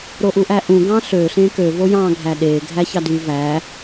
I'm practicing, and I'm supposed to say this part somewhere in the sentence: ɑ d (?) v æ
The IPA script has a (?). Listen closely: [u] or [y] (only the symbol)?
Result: y